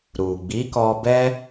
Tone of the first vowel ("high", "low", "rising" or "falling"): low